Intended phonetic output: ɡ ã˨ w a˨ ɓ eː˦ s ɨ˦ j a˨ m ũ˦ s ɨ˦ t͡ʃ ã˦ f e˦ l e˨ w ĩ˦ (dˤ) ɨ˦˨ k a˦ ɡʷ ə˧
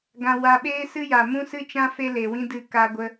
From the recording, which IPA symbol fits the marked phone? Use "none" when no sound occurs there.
d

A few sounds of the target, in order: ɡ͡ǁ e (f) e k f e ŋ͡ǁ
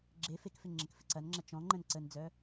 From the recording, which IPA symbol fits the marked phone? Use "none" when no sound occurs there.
f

